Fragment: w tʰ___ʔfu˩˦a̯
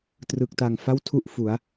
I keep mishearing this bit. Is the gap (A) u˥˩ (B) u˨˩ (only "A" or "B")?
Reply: A